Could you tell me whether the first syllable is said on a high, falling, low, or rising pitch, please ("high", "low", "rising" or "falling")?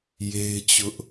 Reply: high